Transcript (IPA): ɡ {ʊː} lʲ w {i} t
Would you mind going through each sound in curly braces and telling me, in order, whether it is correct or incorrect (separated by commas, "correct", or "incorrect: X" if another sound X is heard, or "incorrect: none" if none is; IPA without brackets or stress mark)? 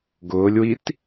correct, correct